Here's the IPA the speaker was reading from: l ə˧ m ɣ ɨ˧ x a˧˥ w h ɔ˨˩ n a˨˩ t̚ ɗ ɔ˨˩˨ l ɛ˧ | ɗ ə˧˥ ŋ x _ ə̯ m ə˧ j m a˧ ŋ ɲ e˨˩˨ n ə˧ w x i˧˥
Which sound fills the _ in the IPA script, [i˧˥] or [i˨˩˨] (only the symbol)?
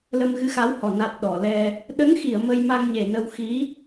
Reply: i˨˩˨